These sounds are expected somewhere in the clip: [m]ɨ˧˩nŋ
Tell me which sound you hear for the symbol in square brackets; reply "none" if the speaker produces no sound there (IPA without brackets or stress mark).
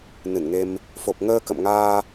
n